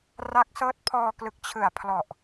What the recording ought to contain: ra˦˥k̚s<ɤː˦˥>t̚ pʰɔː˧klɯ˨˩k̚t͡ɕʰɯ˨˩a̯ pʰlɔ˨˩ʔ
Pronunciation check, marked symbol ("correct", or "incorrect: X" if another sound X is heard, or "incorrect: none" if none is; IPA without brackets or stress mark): correct